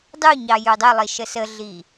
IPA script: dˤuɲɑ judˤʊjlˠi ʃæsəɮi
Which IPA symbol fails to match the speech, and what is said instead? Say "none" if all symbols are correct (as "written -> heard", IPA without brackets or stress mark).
æ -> ə